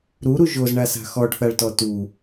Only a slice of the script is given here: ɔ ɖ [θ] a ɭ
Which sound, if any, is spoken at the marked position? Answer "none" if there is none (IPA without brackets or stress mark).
θ